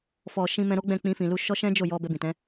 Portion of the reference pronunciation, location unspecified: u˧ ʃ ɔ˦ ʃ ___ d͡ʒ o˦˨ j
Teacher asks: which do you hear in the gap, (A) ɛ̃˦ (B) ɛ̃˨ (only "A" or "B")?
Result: A